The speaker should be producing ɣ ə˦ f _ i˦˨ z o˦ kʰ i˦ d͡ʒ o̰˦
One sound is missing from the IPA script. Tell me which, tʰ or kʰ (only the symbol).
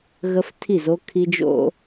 tʰ